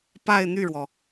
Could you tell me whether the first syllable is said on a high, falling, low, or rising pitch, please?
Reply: falling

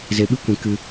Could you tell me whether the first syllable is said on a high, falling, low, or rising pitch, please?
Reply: low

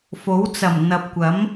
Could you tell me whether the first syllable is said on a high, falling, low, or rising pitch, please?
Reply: rising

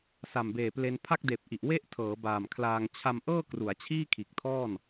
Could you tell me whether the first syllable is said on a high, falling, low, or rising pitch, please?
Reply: low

